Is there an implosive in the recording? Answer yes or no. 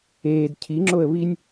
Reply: no